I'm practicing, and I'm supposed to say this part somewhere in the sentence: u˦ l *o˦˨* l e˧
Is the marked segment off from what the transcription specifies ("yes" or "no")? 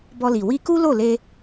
no